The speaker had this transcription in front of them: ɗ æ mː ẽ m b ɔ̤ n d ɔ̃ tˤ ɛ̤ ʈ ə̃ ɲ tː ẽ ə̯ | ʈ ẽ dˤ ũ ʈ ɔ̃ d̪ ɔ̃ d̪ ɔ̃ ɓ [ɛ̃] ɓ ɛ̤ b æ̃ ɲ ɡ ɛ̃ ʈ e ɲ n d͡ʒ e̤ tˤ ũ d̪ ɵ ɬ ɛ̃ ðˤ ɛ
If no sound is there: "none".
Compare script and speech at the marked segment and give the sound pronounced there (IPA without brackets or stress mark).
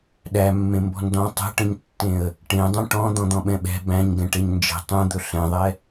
ɛ̃